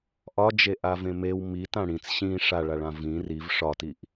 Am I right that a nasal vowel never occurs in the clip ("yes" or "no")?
no